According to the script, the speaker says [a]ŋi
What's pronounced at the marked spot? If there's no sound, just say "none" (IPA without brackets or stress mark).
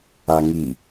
a